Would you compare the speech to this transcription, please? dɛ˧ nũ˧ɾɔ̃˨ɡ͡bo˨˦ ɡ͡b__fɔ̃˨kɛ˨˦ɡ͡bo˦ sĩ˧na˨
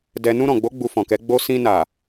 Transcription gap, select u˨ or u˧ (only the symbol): u˧